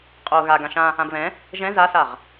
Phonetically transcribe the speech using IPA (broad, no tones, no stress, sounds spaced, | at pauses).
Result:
qʼ o ɣ a ɡ ã ʃ ã | ã b β ɛ̃ | ʒ ɛ̃ z a s a ʁ